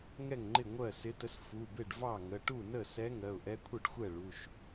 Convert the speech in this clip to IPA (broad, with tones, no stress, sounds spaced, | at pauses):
ŋ ɛ˥˩ ŋ ŋ͡ǃ ɪ˥˩ ŋʷ ɜ˥˩ s ɪ˧˥ t ə˧˥ s f u˩˧˩ b ɪ˥˩ ɖ v ɑ˥˩ ŋ ə˩˧˩ ʈ u˥˩ n ə˥˩ s ɛ˧˥ ŋ ɜ˩˧˩ ʊ̯ ʔ ɛ˧˥ kʷʰ ə˥˩ ɖ xʷ ɛ˥˩ ɭ u˩˧˩ ʃ